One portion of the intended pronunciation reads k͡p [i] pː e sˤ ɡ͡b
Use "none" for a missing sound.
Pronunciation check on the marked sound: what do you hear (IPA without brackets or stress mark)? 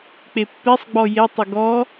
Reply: e